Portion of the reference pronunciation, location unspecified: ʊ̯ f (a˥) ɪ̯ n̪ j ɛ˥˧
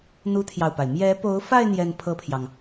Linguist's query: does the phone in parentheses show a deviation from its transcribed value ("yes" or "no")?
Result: yes